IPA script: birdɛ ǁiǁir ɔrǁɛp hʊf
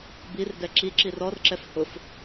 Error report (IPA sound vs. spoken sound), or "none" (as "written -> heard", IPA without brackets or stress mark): p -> f